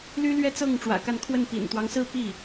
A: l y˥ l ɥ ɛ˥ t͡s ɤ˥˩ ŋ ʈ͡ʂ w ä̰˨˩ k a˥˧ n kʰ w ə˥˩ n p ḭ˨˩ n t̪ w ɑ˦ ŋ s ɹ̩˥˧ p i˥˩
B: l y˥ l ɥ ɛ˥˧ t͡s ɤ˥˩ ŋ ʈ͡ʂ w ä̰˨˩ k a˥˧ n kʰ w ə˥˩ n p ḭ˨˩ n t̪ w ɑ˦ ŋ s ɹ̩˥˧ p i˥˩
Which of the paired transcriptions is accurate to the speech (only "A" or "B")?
B